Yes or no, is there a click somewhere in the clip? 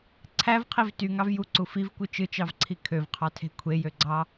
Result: yes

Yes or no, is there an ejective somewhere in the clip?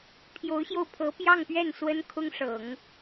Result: no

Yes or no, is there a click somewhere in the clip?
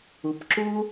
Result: yes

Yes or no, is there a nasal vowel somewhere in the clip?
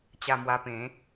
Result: yes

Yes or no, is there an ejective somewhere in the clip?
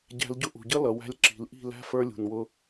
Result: no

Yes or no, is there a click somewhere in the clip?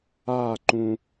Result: yes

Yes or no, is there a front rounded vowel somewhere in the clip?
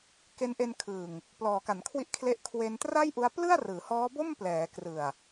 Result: no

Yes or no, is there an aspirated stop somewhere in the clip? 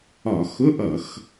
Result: no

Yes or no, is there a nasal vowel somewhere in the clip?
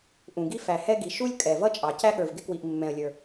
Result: yes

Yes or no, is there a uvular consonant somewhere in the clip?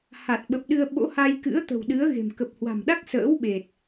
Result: no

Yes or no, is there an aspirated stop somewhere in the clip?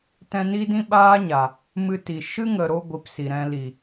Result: no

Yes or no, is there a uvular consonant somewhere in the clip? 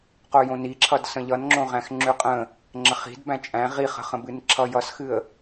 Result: yes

